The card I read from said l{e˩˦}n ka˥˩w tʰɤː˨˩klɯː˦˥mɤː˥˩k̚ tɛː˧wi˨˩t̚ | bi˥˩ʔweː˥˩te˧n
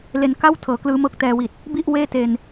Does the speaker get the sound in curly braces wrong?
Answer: yes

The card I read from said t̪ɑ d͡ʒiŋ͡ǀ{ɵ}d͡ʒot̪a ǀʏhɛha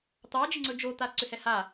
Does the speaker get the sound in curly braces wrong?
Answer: no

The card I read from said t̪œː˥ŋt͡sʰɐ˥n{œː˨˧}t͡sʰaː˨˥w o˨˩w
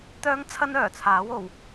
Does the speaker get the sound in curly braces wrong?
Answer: yes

